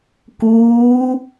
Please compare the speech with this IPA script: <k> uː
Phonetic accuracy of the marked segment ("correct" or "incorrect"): correct